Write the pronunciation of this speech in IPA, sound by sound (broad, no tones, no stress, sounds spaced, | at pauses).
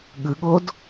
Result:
ɠ ɯ ɠ o d